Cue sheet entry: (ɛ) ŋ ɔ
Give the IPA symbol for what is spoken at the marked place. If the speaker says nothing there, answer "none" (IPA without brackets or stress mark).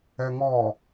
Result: ɛ